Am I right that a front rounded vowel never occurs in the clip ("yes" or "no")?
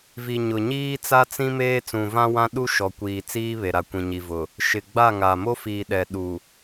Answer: yes